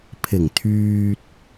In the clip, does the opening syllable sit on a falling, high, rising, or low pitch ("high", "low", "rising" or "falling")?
low